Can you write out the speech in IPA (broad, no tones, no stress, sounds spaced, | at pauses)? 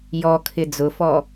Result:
j ɔ kʰ ɪ d͡z ʊ f ɔ